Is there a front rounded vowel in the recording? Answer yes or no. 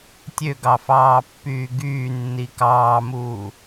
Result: yes